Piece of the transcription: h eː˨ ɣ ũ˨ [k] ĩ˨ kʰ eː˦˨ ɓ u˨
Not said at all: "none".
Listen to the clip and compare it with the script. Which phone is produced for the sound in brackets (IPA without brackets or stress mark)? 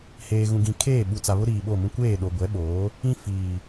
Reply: ɡ